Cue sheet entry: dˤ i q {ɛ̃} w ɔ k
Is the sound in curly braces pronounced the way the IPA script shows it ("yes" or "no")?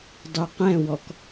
yes